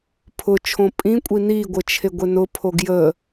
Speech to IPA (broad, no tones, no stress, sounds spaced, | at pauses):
pʰ ʊ t͡ʃʰ õ pʼ ĩ kʷʼ i n i ɡʷ ə t͡ʃʰ e ɡʷ e n ʊ pʰ o ɡ j ə